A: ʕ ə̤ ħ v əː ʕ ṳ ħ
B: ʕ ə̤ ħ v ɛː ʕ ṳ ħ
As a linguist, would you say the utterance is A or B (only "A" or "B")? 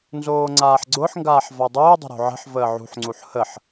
A